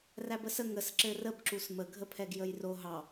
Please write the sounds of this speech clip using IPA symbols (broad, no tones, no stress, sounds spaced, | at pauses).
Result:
r æ b ə s ə ŋ ə s ǁ ɘ r ə b ǁ u s m ə ɡʱ ə pʰ ɛ ɡ j ə j r o ɦ ɑ